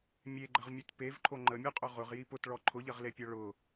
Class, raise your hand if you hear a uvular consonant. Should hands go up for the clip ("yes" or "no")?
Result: yes